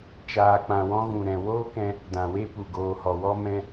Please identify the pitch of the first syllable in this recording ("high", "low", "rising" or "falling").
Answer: low